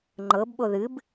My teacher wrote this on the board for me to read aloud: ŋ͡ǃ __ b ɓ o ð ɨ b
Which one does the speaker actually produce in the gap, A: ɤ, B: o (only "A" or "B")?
A